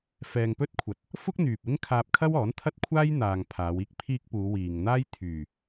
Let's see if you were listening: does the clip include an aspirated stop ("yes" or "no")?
yes